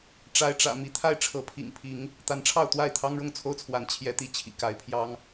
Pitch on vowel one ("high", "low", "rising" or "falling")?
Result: rising